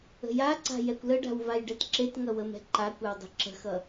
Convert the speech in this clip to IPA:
ə̤jaǀa̤ jɛkʷləɖa̤w vajɖɛtǁetŋʌ wəmɛ̤ǃakʷɛw dˤi̤ǁə̤xʌ

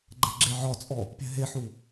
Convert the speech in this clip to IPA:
ɡ͡ǃɛ̤ɡ͡ǁeʕɒt͡sʼɔ | pʲɛ̤ɦeħu

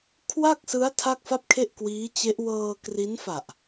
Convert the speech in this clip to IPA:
kʰwa˥˩k̚sɯ˦˥a̯ tʰa˥˩k̚fa˥˩p̚kʰe˥˩ʔkwiː˦˥ t͡ɕe˦˥ʔ wɤː˧ kri˦˥nfa˨˩ʔ

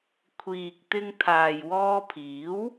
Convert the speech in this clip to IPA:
kʷʰiː˨k̚t̪ɪ˧ŋt̪ʰaː˨j wɔː˧pʰiː˨˥w

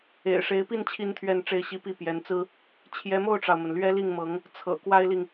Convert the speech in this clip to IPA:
ḛ˨˩ɪ̯ʂe˧˥ɪ̯pi˥˩n t͡ɕʰi˥nt̪ʰɥɛ˥˧nʈ͡ʂe˥˩ɪ̯ɕi˥ pi˥˩ pjɛ˧˥nt͡sɹ̩˥ | t͡ɕʰjɛ˧˥mo˥˩ʊ̯ʈ͡ʂɑ˩ʊ̯mə˩n lɥɛ˥ li˥˩ŋmɤ˧˥ŋ | t͡sʰɤ̰˨˩ kwa˥ɪ̯li˨ŋ

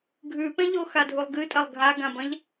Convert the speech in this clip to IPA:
ɡʱʉpẽ ʎoxadʱulˠɡɨ tʼɐlˠɡʱaɡãbɐ̃ʎ

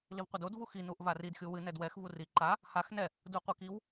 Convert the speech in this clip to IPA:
livqʷɐdod vuxi nuʔvarid xʲuwɨ nɛdwɛx vuri ǃa | hax nɛ | duqʷikiw

